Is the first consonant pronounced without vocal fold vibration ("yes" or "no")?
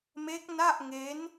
no